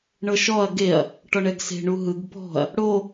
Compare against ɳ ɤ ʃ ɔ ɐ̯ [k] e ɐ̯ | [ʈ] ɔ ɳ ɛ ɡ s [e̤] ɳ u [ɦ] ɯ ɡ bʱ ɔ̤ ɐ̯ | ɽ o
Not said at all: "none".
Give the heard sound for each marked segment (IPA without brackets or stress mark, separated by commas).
ɡ, ʈ, e̤, ɦ